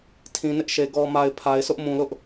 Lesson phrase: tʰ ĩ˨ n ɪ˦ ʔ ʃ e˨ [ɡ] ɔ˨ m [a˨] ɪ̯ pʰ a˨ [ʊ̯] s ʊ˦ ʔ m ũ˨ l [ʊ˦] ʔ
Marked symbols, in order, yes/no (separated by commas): yes, yes, no, yes